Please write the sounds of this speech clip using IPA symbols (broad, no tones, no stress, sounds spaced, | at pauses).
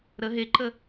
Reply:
ɾ ə ɦ e ǃ ə